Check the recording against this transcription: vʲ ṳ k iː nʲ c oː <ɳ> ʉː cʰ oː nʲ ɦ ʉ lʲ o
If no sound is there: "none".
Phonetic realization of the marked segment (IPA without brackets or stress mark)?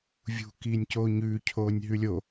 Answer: ɲ